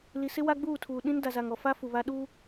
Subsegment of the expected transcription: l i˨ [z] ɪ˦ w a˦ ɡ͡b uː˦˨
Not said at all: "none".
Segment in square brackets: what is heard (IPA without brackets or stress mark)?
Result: s